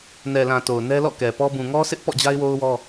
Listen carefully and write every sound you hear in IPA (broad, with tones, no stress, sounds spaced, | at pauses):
n ɛ˨ l ã˨ t o˨ ʊ̯ n ɛ˦ l ɔ̰˦˨ k ɛ˨ p ɔ˦ b ũ˨ ŋ ɔ˦ s ɪ˦ ʔ p ɔ̰˦˨ d͡ʑ a˦ ɪ̯ w o˦ ʊ̯ w ɔ˦